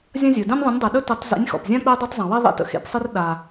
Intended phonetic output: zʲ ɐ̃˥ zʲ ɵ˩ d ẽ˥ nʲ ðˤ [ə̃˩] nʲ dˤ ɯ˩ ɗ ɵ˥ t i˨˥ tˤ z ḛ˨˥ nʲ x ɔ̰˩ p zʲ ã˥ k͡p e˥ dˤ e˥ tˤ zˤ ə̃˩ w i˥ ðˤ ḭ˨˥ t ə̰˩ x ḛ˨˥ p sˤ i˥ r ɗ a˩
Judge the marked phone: incorrect: ə̃˨˥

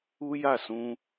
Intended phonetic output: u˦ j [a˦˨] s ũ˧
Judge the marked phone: correct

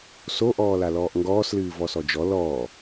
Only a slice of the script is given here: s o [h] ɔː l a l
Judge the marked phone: incorrect: ʔ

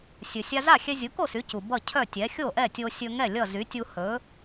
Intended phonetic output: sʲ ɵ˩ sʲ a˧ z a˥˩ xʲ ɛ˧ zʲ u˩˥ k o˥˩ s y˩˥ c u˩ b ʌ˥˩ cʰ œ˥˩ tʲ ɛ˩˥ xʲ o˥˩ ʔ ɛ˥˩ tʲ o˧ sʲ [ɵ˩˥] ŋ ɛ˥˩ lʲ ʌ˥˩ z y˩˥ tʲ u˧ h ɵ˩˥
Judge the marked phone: incorrect: ɵ˧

